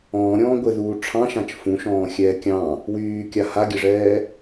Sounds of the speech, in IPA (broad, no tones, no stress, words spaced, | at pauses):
ɔ̃ːɾʲɔ̃ː ɡʷɘðuː ʈ͡ʂʰɑ̃ʃãt͡ʃ fũʃɔ̃ːxʲɛː kʲɑ̃ | wyːkʲa haɡʲɘʐɛː